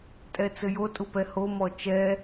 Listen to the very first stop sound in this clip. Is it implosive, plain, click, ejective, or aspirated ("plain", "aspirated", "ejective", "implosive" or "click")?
ejective